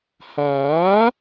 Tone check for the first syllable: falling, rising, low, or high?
rising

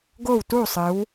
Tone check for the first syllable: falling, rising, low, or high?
falling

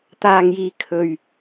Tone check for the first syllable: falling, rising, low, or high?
low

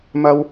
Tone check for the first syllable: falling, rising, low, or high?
high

